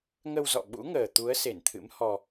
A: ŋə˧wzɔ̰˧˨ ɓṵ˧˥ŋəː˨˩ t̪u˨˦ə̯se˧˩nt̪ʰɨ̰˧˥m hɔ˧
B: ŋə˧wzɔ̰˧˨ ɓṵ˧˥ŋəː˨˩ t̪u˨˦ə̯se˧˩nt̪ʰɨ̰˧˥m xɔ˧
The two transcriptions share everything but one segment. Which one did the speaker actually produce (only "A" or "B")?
A